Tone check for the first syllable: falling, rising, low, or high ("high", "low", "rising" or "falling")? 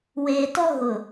low